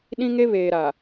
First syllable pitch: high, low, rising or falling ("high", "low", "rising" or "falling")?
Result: high